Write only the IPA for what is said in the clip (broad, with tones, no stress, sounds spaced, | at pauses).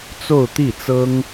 t͡s o˥˧ ʊ̯ t̪ i˥˩ t͡s ɤ˥ ŋ